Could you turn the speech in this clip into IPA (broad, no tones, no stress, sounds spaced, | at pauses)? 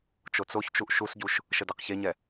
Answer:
t͡ʃ o t͡s o ç t͡ʃ u ʔ ʃ u s ɟ u ʃ | ʃ ə d ɛ q ç e ɲ ɛ